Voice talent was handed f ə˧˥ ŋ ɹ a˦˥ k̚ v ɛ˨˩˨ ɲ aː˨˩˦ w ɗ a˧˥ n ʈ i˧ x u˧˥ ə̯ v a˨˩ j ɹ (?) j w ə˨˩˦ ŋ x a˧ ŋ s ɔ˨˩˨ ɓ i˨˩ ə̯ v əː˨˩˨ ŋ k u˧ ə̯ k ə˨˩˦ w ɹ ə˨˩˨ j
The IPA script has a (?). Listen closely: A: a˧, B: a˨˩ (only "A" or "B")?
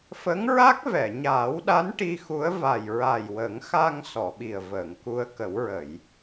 B